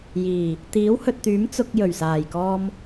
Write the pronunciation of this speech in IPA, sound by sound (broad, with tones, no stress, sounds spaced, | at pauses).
j iː˨˩ | t̪ iː˨˥ w h ɵ˨ t̚ t̪ yː˨˥ m t͡s ʊ˧ k̚ j ɵ˨˩ ɥ s aː˨˩ j k ɔː˧ m